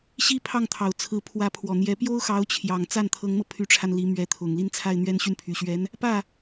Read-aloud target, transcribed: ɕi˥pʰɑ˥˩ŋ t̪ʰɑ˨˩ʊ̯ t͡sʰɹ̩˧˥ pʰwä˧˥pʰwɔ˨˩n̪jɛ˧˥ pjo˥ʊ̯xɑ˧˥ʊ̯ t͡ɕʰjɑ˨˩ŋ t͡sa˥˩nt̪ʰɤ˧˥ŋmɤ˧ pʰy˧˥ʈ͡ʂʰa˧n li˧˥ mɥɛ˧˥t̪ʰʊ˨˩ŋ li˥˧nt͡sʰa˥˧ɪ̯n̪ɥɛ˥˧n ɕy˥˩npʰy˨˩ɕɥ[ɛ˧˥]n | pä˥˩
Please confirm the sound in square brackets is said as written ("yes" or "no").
yes